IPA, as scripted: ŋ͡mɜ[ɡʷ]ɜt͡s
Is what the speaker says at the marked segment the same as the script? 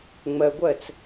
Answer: yes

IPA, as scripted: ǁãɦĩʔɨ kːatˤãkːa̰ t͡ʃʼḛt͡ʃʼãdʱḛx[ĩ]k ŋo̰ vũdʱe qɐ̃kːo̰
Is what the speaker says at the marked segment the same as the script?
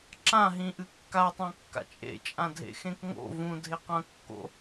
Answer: no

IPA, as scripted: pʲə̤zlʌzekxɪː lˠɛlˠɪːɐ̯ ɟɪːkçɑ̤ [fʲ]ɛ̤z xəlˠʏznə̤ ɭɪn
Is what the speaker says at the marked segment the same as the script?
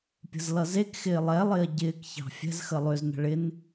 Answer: yes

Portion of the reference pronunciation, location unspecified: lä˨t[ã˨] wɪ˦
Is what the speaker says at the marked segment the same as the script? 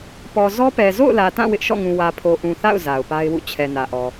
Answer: no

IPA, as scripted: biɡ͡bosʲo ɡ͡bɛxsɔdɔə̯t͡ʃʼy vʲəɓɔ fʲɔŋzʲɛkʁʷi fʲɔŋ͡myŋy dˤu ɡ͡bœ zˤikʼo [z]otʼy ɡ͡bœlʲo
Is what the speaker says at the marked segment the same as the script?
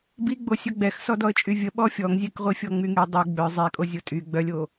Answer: no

